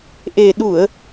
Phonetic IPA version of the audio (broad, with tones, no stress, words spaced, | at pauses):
ʔe˨˩ ɗu˧˩˨ə̯